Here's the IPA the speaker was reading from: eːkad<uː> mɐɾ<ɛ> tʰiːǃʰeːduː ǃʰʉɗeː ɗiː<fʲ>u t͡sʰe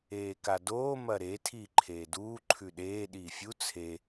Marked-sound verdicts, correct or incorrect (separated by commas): incorrect, incorrect, correct